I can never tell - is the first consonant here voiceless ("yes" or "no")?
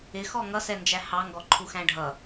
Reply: yes